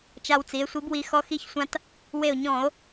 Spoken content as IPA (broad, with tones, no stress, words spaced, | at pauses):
t͡ʃa˧wt͡si˩˧e̯sʷi˨˥bwi˧ xɔ˧xi˧çsʷã˧t | we˧˩o̯ɲɔ̃˧˩˧o̯